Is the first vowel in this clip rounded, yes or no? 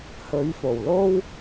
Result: yes